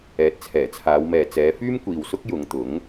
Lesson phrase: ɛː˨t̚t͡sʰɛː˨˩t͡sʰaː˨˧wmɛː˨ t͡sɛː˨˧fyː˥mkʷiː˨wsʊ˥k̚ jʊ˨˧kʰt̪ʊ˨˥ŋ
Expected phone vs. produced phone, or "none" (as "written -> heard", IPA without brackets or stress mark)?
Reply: kʰ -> ŋ